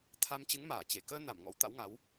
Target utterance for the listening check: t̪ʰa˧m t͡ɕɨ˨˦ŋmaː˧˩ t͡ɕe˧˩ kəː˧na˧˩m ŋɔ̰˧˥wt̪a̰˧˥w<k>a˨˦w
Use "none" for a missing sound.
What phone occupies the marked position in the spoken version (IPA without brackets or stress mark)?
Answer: ŋ